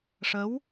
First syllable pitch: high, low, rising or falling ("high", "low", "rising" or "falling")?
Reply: rising